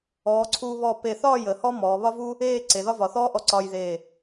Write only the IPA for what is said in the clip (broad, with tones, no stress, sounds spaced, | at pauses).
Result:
ɔː˩˧ ǀʰ uː˧ β ɔ˧˩ p e˧˩ θ ɒː˥˧ j əː˩˧ h ɔ˥ m ɔː˩˧ β ɒ˥ v u˥ | eː˥˧ ǀ e˩˧ ð ɒ˥ v ɒ˩˧ θ ɔː˥ ʔ ɔ˧ ǀ ɒː˧ j ð eː˧˩